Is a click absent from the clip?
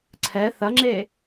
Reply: no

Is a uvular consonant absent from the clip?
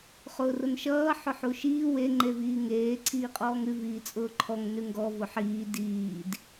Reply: no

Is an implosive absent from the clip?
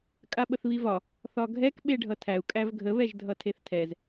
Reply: no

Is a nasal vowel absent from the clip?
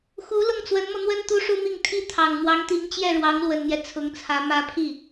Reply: yes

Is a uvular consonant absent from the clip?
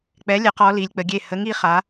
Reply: no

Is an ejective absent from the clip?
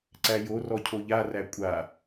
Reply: no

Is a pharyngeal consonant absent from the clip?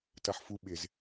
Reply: no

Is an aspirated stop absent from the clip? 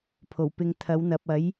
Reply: no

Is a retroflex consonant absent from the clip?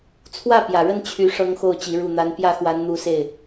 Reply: no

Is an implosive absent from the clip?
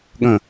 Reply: no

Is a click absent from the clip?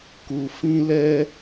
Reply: yes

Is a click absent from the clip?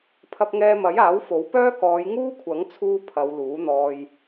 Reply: yes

